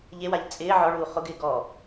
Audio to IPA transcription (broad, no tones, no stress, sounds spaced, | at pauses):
ʎ e w a ʎ t͡sʼ ɪː ʕ ɔ ɭ uː χ ʊ ɡ ɪː ɡ ɔ